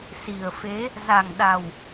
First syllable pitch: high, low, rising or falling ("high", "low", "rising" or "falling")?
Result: low